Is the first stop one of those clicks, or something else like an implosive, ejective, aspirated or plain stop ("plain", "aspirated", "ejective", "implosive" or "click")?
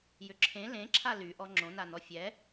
click